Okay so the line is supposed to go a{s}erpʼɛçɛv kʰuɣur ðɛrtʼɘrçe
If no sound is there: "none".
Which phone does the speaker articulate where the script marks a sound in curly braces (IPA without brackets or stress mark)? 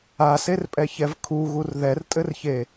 s